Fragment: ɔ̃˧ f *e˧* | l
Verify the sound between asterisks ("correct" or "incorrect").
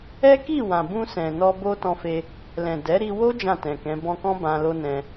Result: correct